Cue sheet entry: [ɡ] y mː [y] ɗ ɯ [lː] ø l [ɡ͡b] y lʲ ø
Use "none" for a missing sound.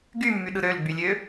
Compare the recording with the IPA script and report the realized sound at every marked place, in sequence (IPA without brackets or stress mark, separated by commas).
ɡ, y, ɾ, ɡ͡b